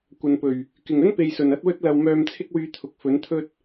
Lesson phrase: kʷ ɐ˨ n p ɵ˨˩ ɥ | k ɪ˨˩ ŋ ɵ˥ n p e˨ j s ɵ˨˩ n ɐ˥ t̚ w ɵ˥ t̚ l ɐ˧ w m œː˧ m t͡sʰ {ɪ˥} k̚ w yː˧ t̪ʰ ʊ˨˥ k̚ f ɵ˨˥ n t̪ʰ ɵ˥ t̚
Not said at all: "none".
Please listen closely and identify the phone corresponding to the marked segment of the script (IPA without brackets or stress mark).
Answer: ɪ˥